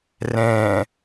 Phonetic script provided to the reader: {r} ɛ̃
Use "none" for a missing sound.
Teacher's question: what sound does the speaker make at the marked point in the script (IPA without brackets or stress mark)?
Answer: r